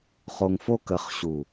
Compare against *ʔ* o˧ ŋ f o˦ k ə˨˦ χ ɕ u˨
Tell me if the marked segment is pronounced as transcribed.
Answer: no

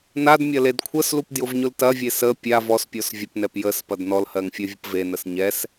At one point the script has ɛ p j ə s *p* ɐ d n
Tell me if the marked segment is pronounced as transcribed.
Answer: yes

